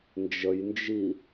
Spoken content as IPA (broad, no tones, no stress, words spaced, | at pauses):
nd͡ʒəjnd͡ʒi